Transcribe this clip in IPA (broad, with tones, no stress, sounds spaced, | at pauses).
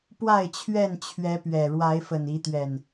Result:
p w a˥˨ ɪ̯ t͡ɕʰ ɥ ɛ˥˨ n t͡ɕʰ ɥ ɛ˨˦ p ɥ ɛ˨˩ ɻ w a˨˦ ɪ̯ f ə˨˩ n i˨˦ t̪ ɥ ɛ˨˩ n